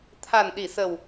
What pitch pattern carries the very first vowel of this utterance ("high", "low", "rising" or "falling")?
low